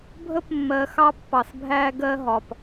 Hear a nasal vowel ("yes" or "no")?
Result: no